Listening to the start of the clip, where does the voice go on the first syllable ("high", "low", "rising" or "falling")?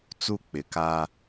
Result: high